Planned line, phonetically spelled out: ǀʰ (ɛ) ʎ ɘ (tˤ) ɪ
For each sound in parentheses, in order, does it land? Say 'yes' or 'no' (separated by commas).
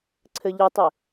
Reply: no, yes